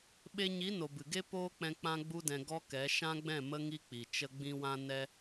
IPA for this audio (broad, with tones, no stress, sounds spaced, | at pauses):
ɓ e˧ ɲ i˨˦ n o˨ b ɨ˨ ɡ e˦ p oː˦ k͡p ɛ̃˧ k͡p ã˦ ɡ͡b u˦ d ɛ̃˧ ɡ ɔ˦ k ɛ˨˦ ʃ ã˦ ɡ͡b ɛ̃˦˨ m ə˦ ŋ i˦ k͡p i˨ t͡ʃ ə˧ ɡ͡b ĩ˦ w ã˦ n ɛ˦